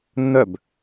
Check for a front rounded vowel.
present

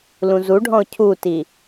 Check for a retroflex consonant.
present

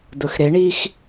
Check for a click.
absent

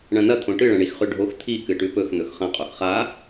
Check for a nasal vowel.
present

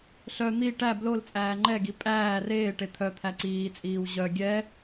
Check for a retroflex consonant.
present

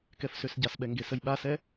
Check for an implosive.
present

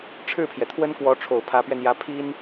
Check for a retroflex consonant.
present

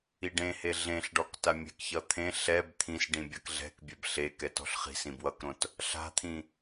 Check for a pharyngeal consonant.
absent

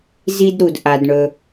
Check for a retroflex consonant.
present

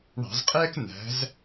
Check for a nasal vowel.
absent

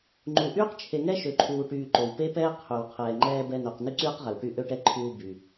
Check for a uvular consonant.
present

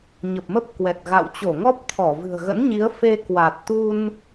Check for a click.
absent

